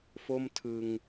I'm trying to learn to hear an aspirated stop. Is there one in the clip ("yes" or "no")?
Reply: yes